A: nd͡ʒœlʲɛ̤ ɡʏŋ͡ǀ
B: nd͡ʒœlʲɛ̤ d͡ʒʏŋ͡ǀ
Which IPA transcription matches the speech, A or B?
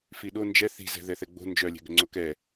A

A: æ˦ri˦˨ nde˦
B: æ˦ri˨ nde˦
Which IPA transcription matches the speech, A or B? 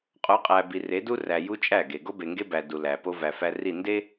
A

